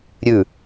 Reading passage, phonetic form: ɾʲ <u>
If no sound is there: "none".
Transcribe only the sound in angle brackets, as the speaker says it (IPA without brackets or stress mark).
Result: ʉ